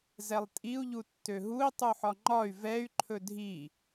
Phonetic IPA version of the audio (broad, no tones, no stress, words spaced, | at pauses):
zɛlˠtʼiu̯ ʎutːøɦui̯ tˤuħɒŋ͡ǃɒy̯ vɛy̯ ǃʰɵdʱi